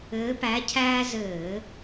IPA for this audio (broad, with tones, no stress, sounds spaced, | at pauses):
ɘː˧˥ p æ˧˥ cʰ æː˥ z ɘː˧˩˧